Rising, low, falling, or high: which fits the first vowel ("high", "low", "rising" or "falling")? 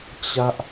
high